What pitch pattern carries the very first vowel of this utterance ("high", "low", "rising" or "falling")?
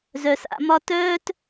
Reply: low